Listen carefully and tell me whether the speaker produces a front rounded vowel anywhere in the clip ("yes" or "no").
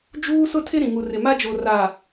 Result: no